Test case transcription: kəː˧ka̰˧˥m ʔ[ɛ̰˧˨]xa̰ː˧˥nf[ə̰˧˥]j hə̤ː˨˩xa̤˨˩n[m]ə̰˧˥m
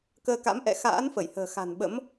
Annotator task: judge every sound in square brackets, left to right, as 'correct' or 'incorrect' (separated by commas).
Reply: correct, incorrect, incorrect